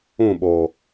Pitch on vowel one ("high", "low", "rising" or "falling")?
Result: falling